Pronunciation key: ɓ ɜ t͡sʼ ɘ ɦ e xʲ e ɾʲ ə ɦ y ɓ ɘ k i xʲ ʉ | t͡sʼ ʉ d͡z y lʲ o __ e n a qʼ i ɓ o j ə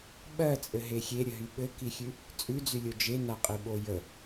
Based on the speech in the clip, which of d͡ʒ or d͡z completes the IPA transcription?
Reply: d͡ʒ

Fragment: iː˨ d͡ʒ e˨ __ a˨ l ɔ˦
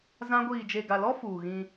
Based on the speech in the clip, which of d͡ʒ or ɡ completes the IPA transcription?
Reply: ɡ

